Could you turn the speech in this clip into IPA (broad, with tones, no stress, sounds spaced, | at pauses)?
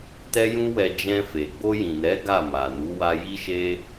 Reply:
t ɛ˦ j ũ˦ w ɛ˧ d͡ʒ ɛ̃˧ f e˨ ɡ͡b o˧ j ĩ˨ n ɛ˨˦ ɡ a˦˨ m a˨ n u˨˦ w a˧ j i˦ ʃ e˦